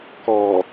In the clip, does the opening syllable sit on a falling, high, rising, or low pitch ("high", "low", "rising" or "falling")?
low